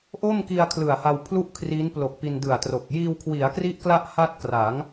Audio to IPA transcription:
ʔ o˥˩ m k i˧ a̯ kʰ l ɯ˨˩ a̯ h a˧ w pʰ l u˥˩ ʔ kʰ r i˦˥ n p l o˨˩ k̚ p i˧ n d ɯ˨˩ a̯ t r o˨˩ k̚ j iː˧ w kʰ w i˩˦ a̯ k r i˦˥ ʔ k l a˥˩ ʔ h a˥˩ t̚ k r a˩˦ ŋ

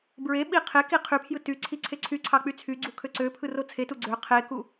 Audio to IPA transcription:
b ɹ e ɓ i qʰ e k i qʰ y pʰ j ɯ t y ǀʰ i ǀʰ e ǀʰ y ǀʰ ɑ k͡p y t͡sʰ y ɡ͡ǀ u kʰ ø ǀ ø pʰ ɯ r o t͡sʰ e t u ɡ͡ǀ ø qʰ e k u

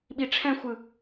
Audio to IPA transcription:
ɓ i ʈ͡ʂʰ ɛ̃ xʷ ɯ

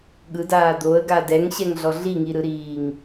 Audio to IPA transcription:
ɠ ɯ d aː d̪ o ə̯ ɡ a d ɛ ŋ ɕ ɛ ŋ ɮ ɔ ɮ i ŋ i ɾ ɯ ɾ iː ŋ

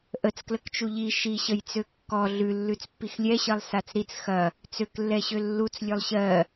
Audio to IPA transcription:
ʔ ə t͡s k l ə k t͡ʃ u ʎ i ʃ i ɕ ə j t͡s ø kː ɔ ɮ ʉ lː ʉ t͡s pː i x lʲ ɛ ɕ ɜ lˠ s a t͡s ɾ i t͡s x ɐ | t͡s ø k lː ɛ ɕ ø lː u t͡s lʲ ø lˠ ɕ ɜ

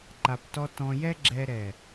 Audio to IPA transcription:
ǃ a˧ p t ɔ˥ t ɔ̃˧ j ɛ˥ ɡ͡ǁ ɛ˥ ɾ ɛ˧˩

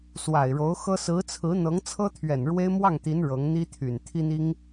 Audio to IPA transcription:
s w a˨˩ ɪ̯ ɻ o˧˥ ʊ̯ x ɤ˥ s ɹ̩˧˥ t͡sʰ ɹ̩˧˥ n̪ ɤ˧˥ ŋ t͡sʰ ɤ˥ t̪ʰ ɥ ɛ˨˩ n ɻ w e˥ ɪ̯ m w ɑ˥˩ ŋ t̪ i˧˥ n ɻ ɤ˧˥ ŋ n̪ i˥ t̪ʰ y˨˩ n t̪ʰ i˥ n̪ i˥ ŋ

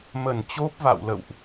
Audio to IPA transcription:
m ə˧˩ n t͡ɕ o˦˥ p̚ v a̰˧˨ w l ə̰˧˨ w ʔ

